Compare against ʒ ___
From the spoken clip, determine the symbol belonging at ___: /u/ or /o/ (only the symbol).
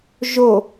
o